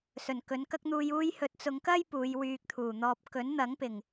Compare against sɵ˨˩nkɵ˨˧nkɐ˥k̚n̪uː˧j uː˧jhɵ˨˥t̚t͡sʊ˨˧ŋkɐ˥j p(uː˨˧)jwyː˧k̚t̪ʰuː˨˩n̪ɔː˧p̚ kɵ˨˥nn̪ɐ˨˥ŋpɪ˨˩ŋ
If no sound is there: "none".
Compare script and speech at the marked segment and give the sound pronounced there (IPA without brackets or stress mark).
uː˨˧